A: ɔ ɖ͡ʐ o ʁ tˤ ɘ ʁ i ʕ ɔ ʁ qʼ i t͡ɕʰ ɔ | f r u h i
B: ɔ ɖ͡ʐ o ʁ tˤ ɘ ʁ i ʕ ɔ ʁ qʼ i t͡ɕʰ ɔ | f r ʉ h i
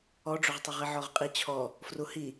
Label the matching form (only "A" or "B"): A